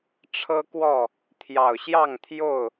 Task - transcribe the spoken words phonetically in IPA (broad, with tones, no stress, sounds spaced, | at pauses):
ʈ͡ʂʰ ɤ˦ k w ɔ˥˨ | t̪ʰ j ɑ˨˩ ʊ̯ ɕ j ɑ˥˨ ŋ t̪ʰ j o˥˨ ʊ̯